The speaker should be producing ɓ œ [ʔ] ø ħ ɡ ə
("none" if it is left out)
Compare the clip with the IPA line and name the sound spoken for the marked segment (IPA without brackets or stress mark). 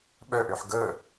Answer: ʔ